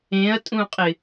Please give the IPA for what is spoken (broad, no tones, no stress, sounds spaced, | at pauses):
ẽ ɐ̯ tʼ ũ qʼ ɪ